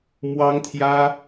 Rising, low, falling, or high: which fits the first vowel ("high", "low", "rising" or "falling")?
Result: high